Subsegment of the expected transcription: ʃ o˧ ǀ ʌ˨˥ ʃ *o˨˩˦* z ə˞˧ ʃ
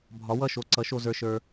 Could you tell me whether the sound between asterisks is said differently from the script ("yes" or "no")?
yes